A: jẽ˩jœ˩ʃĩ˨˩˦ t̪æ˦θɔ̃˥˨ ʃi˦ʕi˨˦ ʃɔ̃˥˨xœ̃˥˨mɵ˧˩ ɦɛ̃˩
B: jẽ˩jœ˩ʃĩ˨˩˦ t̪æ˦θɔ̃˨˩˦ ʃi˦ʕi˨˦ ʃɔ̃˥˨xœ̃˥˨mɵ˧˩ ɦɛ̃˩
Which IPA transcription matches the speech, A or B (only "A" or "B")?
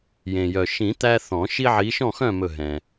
B